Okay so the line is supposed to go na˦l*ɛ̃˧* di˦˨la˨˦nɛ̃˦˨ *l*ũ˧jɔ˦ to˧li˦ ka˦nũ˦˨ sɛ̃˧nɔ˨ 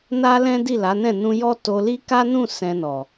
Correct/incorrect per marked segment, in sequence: incorrect, incorrect

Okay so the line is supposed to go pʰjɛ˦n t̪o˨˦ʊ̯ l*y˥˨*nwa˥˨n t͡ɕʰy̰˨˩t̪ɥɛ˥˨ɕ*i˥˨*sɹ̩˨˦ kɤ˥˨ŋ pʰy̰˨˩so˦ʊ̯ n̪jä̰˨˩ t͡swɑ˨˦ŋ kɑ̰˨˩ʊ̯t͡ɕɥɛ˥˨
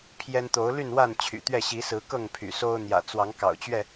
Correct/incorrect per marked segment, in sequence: correct, incorrect

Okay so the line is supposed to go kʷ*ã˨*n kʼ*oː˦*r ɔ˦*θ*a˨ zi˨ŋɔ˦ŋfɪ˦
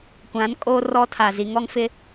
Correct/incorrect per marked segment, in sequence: incorrect, correct, incorrect

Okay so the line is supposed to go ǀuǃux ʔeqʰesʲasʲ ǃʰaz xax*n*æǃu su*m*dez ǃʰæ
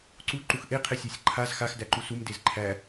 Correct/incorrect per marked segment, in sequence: incorrect, correct

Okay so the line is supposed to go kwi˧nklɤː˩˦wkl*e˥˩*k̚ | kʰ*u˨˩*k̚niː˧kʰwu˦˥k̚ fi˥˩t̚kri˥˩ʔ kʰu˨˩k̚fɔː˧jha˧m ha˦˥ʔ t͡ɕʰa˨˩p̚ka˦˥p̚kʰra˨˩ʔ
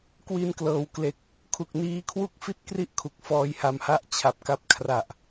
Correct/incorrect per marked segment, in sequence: incorrect, correct

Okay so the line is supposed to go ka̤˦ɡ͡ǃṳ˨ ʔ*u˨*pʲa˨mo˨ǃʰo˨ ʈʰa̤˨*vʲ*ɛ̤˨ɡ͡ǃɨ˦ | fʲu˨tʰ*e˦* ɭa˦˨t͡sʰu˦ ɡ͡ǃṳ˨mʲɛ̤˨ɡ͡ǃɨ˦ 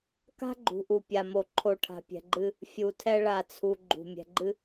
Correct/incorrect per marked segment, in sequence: correct, incorrect, incorrect

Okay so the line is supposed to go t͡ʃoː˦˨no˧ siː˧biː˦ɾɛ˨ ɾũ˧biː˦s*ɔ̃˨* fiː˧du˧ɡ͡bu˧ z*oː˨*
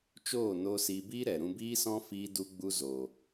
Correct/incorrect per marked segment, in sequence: incorrect, correct

